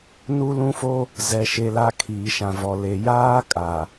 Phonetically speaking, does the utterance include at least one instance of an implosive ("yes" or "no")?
no